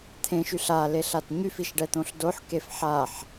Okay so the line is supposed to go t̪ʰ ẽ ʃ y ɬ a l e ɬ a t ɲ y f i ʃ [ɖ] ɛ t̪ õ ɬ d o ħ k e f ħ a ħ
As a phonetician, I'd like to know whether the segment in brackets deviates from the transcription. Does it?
no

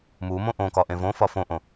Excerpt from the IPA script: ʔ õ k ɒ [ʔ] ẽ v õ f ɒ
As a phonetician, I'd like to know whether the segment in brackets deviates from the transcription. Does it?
no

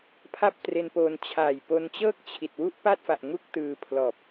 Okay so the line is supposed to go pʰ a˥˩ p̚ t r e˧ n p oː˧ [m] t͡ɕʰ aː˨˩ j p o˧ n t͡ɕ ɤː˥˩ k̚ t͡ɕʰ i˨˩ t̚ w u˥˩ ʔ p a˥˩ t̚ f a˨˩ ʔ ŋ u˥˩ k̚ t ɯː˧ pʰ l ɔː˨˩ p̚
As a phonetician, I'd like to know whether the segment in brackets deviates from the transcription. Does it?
yes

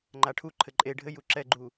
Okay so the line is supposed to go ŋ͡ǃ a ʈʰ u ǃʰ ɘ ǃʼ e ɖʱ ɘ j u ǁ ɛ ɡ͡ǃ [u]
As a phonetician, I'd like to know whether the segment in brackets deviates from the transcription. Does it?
no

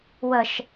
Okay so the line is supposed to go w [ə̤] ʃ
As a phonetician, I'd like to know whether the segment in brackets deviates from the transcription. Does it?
yes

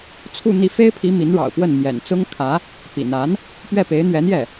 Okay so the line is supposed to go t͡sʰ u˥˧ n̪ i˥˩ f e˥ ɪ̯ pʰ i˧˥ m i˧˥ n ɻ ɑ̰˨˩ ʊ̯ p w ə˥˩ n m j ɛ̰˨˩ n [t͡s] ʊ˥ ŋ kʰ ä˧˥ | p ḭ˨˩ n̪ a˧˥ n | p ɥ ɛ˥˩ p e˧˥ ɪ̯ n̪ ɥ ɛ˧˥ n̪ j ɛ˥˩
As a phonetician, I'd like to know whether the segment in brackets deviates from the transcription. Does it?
no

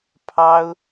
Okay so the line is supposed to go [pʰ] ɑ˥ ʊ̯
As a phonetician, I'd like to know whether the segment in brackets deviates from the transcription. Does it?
no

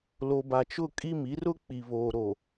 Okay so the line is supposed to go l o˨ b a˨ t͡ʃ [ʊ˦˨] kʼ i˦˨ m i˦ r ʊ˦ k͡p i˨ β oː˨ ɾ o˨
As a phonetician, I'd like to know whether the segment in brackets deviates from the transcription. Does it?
no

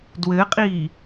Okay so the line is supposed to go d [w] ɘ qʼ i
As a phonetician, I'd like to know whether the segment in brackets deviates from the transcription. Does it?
no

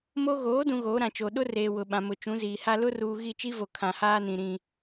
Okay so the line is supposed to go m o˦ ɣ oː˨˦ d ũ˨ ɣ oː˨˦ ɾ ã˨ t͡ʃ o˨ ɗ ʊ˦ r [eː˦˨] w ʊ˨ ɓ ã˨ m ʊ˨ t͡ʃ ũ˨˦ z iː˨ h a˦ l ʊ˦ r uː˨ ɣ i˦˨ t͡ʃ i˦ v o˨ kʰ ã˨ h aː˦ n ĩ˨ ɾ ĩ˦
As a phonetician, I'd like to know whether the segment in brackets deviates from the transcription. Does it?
yes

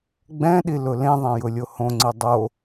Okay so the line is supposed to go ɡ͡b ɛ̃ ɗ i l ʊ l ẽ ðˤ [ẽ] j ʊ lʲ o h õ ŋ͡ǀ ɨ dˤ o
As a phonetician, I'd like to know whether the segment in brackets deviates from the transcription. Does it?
yes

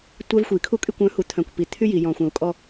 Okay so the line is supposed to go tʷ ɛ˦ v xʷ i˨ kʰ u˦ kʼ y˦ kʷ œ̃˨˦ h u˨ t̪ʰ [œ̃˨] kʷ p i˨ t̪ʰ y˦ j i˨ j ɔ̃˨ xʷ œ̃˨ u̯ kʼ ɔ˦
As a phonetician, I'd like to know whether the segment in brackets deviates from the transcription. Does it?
no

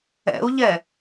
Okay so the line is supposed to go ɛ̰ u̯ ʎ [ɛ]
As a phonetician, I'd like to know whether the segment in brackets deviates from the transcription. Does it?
no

